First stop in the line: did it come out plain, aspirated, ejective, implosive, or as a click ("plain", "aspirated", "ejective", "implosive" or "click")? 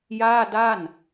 plain